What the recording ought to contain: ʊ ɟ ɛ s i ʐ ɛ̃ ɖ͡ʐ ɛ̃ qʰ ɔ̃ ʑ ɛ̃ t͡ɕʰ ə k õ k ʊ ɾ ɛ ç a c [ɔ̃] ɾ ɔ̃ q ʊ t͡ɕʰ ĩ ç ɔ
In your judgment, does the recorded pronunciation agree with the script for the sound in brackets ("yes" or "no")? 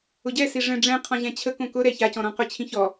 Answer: yes